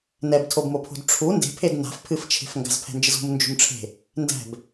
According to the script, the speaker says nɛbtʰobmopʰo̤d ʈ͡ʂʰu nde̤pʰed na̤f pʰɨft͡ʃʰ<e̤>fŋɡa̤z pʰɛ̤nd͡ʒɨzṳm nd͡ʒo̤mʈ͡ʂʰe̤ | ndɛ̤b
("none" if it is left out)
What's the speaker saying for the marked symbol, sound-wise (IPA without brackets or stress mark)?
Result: e̤